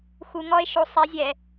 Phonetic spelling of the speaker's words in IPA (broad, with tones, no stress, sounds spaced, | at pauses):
x u˧˩˧ ŋ ɔ˦˥ e̯ ʃ o˨˥ sˤ ɛ˨˥ zʲ ɛ˧˩˧